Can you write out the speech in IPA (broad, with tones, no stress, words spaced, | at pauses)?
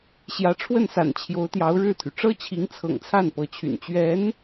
ɕjä˧˥ʈ͡ʂʰwə˥˩nsa̰˨˩n t͡ɕʰjo˧˥ʊ̯t̪jɑ˧˥ʊ̯ ɻɻ̩˥˩t̪ʰy˩ ʈ͡ʂɤ˥t͡ɕʰi˧˥ŋt͡sʰɤ̰˨˩ŋt͡sʰa˥˩n pɤ˧˥t͡ɕʰy̰˨˩n t͡ɕɥɛ˧˥n